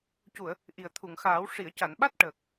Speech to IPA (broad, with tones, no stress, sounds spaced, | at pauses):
c u˨˩˨ ə̯ | ʔ i˨˩ ə̯ t̪ʰ u˨˩˨ ŋ x aː˨˩˦ w ʂ i˨˩˨ ə̯ c a˨˩˨ n ɓ a˦˥ t̚ ʈ əː˨˩ k̚